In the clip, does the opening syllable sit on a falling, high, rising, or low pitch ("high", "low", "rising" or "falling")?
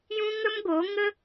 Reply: high